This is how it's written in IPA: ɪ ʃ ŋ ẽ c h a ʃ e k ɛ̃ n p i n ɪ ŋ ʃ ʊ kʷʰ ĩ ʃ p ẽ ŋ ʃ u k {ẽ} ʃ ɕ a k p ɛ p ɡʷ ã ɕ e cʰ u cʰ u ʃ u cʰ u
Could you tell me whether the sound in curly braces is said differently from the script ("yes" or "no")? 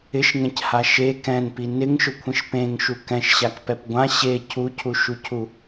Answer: yes